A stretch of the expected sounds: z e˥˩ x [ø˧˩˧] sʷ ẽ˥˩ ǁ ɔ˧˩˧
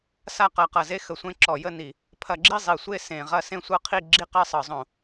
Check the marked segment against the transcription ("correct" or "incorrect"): incorrect